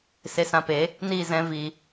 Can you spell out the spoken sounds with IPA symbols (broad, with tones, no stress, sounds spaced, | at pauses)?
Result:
s e˧ s ã˧ p e˨˦ | n iː˦˨ z ɛ̃˧ v i˨